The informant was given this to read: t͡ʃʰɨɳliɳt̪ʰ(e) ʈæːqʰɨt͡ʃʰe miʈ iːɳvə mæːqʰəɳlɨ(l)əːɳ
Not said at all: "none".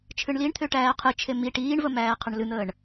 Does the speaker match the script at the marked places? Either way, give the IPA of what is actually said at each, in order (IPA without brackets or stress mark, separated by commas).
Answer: ø, n̪